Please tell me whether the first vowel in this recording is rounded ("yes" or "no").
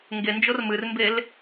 no